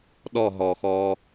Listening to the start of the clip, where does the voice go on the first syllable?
falling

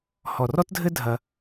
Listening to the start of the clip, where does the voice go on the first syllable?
low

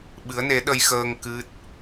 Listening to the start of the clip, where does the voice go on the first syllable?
rising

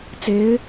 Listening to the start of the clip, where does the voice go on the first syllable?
rising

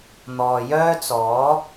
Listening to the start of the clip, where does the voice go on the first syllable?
low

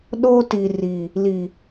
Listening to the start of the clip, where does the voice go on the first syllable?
high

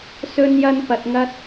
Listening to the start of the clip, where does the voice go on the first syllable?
low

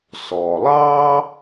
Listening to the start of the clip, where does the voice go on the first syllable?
low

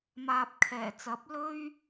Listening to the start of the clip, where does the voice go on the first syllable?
low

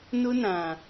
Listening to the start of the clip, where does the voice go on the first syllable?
high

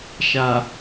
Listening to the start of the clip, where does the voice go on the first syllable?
low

